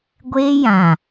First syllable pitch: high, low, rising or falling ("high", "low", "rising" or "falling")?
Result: high